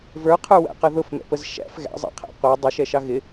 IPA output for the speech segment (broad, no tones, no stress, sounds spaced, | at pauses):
v ə˞ qʰ ə˞ w æ̰ q ʌ ð ʊ f m ɛ̰ p ə z ʃ æ̰ f ɣ æ̰ zˤ æ̰ qʰ æ̰ qʷ ə˞ dˤ ʊ ʃ ɛ ʃ ɑ ɣ ɪ